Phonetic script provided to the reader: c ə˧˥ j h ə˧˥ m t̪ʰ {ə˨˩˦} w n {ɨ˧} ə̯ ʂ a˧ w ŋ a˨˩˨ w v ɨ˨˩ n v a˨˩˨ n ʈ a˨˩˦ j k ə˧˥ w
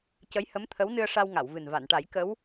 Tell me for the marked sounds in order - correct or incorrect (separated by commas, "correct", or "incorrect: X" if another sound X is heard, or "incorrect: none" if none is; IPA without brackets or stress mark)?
incorrect: ə˧˥, correct